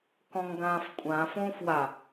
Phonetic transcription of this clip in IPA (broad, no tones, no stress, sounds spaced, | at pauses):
k ɔ̃ ŋ ɡ ãː f kʷʼ ãː f õː f w a